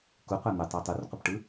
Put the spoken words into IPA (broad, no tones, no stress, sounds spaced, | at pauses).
k u qʷ æ n̪ ø tˤ o tˤ u r qʷ ɯ p ʈ ɯ